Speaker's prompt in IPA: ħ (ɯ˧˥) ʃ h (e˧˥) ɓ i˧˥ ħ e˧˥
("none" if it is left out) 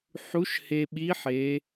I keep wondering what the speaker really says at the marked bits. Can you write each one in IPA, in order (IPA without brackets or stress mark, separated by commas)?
u˧˥, e˧